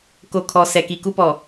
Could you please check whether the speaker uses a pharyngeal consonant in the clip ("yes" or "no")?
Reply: no